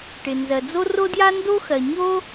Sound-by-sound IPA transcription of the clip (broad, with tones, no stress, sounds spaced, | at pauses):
ʈ ɪ˩ n z ɜ˩ d͡z o˥ r o˥ d j a˥ n d o˥ x ɜ˩ ɲ o˥